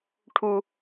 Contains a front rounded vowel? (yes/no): no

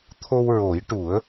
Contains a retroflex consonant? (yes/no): yes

